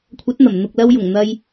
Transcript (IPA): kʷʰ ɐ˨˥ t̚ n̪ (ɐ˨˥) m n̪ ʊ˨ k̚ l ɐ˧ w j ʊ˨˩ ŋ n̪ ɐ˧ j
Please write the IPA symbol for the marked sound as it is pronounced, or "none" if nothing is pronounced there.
ɐ˨˩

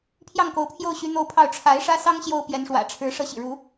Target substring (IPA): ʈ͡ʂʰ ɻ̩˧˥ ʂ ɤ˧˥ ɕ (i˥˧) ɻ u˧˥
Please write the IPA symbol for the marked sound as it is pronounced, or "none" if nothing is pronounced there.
ḭ˨˩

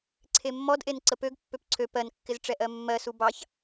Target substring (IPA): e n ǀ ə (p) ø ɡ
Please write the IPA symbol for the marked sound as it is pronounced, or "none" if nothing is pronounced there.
p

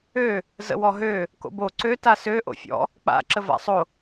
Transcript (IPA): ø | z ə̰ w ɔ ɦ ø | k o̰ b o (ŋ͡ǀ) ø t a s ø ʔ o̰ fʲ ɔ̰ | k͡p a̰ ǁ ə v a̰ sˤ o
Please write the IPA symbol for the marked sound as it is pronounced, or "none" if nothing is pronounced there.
ǀ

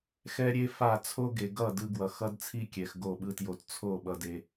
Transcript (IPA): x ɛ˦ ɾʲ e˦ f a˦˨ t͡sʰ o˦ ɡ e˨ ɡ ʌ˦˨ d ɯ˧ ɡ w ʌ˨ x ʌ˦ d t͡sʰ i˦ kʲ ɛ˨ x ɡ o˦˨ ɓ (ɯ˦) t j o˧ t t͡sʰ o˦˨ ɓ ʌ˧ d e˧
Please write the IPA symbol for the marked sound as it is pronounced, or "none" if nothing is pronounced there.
ɯ˦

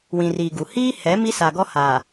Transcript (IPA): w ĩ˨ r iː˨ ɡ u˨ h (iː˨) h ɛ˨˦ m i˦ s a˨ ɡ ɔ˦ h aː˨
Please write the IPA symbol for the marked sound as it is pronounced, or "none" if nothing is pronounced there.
iː˦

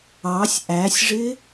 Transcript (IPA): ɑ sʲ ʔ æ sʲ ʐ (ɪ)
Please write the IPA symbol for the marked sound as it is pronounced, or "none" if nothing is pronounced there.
ɪ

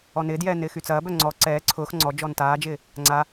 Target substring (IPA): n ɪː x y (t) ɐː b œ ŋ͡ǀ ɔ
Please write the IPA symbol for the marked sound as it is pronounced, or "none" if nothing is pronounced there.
t͡s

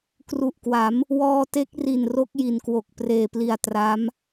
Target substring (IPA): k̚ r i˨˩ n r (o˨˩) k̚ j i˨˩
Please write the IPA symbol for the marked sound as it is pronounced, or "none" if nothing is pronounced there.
o˦˥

